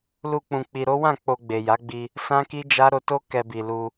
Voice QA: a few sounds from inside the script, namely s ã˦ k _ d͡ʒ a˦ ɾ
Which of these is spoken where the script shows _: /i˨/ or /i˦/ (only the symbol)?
i˦